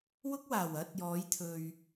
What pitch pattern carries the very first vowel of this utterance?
high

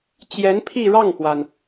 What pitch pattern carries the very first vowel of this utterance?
rising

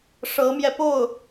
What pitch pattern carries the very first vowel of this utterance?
rising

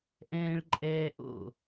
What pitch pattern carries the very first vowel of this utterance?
high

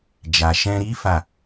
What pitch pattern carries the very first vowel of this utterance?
low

